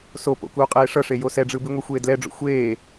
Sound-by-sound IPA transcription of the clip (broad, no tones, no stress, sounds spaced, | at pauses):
s o p o̰ k uː qʼ eː ʂ ʌ ʂ e j o s ɛ ɖ͡ʐ ɯ b i ŋʷ e xʷ eː d l ɛ ɖ͡ʐ o̰ xʷ eː